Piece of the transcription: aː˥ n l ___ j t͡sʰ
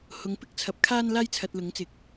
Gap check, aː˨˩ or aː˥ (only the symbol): aː˥